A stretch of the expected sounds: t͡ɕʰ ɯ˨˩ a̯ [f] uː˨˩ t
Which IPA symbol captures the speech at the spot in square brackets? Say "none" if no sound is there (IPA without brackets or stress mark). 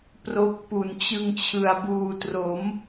b